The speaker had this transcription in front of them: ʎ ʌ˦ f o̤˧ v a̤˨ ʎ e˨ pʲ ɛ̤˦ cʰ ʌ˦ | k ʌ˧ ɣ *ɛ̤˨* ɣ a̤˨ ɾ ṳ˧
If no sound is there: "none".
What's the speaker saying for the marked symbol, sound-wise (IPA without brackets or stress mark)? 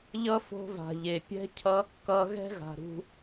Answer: ɛ̤˦